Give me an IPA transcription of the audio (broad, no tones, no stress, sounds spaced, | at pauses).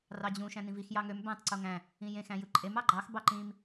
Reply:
r ɑ d͡ʑ ũ ʃ æ̃ n ĩ v i x j ɑ ŋ ø m b æ̃ tˤ ǀ o ŋ æ̃ | ĩ j ẽ x æ̃ j ɯ ǃʼ e m ɑ ɡ͡ǃ ɑ x b ɑ ǃ ĩ m